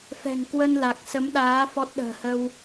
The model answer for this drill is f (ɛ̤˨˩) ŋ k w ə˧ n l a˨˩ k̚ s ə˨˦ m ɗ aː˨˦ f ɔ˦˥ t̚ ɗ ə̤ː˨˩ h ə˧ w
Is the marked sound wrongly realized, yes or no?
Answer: no